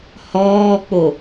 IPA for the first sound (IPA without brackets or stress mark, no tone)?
h